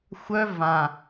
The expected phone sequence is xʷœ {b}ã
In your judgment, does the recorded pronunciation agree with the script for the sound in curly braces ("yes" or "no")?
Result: no